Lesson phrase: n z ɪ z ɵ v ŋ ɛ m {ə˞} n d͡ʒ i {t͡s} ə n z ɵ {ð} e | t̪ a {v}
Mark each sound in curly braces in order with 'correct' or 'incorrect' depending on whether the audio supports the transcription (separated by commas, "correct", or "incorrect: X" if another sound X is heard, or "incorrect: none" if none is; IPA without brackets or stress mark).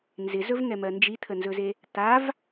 incorrect: ɜ, incorrect: t̪ʰ, incorrect: z, correct